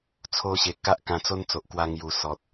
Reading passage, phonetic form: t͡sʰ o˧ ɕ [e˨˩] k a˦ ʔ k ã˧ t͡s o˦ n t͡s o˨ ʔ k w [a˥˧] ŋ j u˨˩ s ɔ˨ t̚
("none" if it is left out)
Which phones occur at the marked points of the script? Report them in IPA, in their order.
e˨˩, a˧

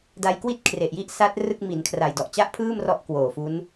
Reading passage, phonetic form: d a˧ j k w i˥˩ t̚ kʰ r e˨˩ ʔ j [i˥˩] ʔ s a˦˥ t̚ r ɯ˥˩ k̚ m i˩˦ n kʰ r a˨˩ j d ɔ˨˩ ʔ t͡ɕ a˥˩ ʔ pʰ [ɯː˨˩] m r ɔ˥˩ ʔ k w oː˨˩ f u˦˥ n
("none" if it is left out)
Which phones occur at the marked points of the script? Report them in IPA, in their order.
i˥˩, ɯː˥˩

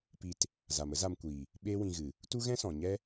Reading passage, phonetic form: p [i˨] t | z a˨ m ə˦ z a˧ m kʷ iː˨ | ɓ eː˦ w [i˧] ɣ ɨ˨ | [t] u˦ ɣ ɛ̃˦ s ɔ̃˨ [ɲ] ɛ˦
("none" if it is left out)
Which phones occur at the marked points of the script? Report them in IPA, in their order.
i˧, ĩ˧, t, ɲ

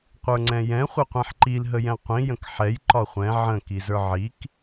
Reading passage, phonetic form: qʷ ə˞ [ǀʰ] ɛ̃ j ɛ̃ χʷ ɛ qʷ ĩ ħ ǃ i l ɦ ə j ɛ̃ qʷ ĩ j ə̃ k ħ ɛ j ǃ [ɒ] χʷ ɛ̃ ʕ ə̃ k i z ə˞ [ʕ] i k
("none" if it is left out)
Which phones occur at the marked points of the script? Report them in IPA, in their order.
ŋ͡ǀ, ɒ, ʕ

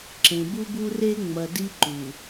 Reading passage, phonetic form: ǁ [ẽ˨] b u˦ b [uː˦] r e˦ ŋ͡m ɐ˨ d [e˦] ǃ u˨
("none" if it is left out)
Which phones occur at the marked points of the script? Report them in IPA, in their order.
ẽ˨, u˦, i˦

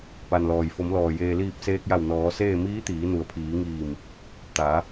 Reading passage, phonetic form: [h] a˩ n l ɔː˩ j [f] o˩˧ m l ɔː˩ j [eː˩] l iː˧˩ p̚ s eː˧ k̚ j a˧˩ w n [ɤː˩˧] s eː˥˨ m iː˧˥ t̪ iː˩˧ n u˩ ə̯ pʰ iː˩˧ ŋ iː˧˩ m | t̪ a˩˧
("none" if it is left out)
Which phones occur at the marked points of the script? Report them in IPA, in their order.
p, f, eː˩, ɔː˩˧

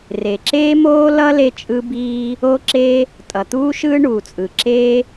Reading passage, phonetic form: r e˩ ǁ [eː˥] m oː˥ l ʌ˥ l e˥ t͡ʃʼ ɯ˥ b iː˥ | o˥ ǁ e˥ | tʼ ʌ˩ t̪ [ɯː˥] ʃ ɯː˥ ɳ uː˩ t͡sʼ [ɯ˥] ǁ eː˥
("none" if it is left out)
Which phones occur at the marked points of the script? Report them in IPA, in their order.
eː˥, uː˥, ɯ˩

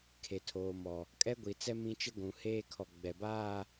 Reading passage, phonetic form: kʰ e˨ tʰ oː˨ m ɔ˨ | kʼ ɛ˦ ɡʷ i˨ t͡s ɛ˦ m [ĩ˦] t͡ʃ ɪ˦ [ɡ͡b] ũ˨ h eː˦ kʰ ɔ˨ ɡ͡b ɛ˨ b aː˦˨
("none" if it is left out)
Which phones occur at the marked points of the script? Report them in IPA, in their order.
ĩ˦, ɡʷ

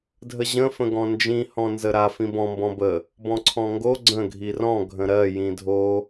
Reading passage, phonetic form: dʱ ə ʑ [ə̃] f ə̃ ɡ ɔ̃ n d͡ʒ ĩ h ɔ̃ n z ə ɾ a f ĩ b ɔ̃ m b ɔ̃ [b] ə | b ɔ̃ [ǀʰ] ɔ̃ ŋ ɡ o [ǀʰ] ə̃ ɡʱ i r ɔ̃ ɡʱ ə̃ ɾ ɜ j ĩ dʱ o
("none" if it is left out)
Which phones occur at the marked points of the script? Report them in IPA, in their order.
ə̃, b, ǀʰ, ɡ͡ǀ

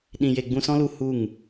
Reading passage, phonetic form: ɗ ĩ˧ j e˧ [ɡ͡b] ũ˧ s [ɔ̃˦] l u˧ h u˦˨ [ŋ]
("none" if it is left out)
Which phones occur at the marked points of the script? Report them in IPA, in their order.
ɡ͡b, ɔ̃˦, ŋ

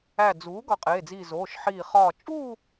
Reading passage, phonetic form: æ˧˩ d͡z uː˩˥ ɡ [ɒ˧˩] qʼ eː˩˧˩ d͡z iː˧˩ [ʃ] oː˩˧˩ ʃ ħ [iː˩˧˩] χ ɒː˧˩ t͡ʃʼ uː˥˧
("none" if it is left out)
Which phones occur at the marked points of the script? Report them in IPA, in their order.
ɒ˧˩, z, iː˧˩

